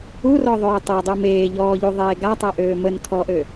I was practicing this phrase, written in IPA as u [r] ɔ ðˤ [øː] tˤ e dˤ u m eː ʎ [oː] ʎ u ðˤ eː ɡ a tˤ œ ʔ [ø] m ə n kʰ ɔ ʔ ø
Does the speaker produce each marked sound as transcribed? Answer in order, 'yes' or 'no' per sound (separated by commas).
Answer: yes, yes, no, no